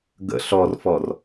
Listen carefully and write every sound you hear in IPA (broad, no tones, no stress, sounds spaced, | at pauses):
ɡ ə̰ ɬ ɔ r f ɔ r